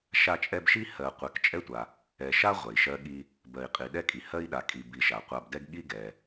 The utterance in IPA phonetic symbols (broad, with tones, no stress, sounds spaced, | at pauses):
ʃ a˦ t͡ʃʼ ɛ˦ b ʃ i˥ h ɜ˨ qʷ ɛ˨ k t͡ʃʼ ɛ˥ tʷ a˨ | ɛ˨ ʃ a˥ ʁʷ ɛ˩ i̯ ʃ ɜ˦ ɠ i˦ | b ɜ˨ i̯ qʼ i˩ ɗ ɛ˥ kʼ i˨ h ɜ˥ i̯ ɗ a˨ kʼ i˨ b i˨ ʃ a˩ qʷ a˨ b d ɛ˦ ɡ ɠ i˥ ɡ ɛ˩